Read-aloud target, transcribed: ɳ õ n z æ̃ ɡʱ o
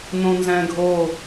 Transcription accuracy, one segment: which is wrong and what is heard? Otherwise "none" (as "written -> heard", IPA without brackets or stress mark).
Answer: ɳ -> n